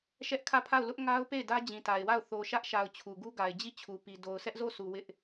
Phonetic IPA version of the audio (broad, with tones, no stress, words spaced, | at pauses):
ʃɛ˦ʔkʰä˦˨pʰa˦˨ʊ̯ lʊ˦ʔŋa˦ʊ̯ pe˦˨ɪ̯dä˦ d͡ʑĩ˨ta˨ɪ̯wa˦˨ʊ̯ θo˨ʃä˦ʔʃa˨ʊ̯ t͡ɕʰu˨ɡu˦ɡa˨ɪ̯ d͡ʑi˦˨t͡ɕʰu˨pi˨ do˨ʊ̯sʰɛ˦ʔzo˦˨su˨ wɪ˦ʔ